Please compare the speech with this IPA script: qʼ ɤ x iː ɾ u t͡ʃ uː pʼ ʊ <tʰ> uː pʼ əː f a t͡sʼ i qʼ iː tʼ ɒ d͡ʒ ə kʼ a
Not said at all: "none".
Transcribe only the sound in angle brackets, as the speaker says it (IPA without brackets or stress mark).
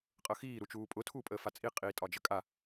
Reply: tʰ